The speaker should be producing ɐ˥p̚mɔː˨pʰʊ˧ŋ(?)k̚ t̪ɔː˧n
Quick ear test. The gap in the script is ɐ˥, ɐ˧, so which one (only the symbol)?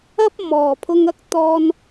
ɐ˥